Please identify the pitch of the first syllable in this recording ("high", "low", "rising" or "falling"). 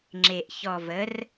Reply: low